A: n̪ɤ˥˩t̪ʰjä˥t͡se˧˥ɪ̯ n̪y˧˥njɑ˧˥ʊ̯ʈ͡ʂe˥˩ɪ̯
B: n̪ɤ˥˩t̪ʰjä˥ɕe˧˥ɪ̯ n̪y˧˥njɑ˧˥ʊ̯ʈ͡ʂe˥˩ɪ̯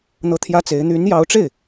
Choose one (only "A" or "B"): A